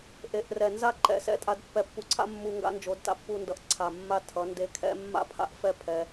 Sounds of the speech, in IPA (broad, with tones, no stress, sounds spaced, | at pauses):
ʔ e˨ ʔ r ɛ˨ n z a˦ ǃ ɛ̰˨ s ɛ̰˦ tʼ a˧ d pː ɛ˧ pː u˧ ǀʰ a̰˦ mː u˧ ŋ ɡ a̰˦ n d͡ʒ o˨˦ d t a̰˧ pː u˦ n d ʌ˧ ʔ ǀʰ a˨ mː a˦ tʰ ʌ˨˦ n d e˧ kʰ ɛ̰˦ mː a̰˦ pʰ a̰˦ ʔ f ɛ˦˨ pʰ ɛ˧